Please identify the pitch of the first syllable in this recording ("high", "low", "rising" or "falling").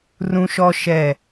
high